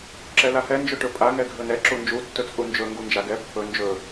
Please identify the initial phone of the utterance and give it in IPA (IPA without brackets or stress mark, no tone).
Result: ǁ